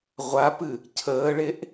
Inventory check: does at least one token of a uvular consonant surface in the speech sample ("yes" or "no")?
yes